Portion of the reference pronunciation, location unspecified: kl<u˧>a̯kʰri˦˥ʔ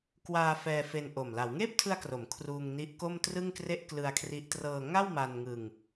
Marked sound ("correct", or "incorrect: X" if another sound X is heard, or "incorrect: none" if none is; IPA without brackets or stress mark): incorrect: ɯ˧